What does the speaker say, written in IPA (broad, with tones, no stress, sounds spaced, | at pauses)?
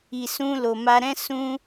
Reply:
i˨ s ũ˧ l o˨ m a˧ ɾ ɛ̃˦ s ũ˦